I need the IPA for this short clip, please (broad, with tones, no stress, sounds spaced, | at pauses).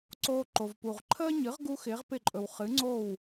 ǀ oː˧ ǃ o˩ v p u˩ ʁ ǃʰ əː˥ ɲ ɨ˩˥ ʁ ɡ u˥ x ɪː˩˥ ʁ p ɪ˥˩ ǃʼ ɵ˩ w χ ɨ˩˥ ŋ͡ǀ o˥˩ w